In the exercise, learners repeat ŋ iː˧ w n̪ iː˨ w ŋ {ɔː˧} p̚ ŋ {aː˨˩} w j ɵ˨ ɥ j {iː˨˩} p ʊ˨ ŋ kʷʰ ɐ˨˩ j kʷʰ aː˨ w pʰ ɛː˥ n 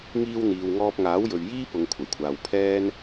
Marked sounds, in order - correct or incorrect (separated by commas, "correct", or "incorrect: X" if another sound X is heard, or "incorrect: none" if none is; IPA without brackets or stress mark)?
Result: correct, incorrect: aː˨˥, incorrect: iː˥